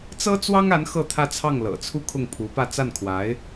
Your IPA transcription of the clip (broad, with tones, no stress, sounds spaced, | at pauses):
t͡s ɤ˥ t͡s w ɑ˥ ŋ a˧˥ n x ɤ˥˧ t̪ʰ ä˥˧ t͡sʰ ɑ˥˩ ŋ l ɤ̰˨˩ t͡sʰ u˥ kʰ ʊ˥˩ ŋ pʰ u˧˥ p ä˥˧ t͡s a˥˩ n kʰ w a˧˥ ɪ̯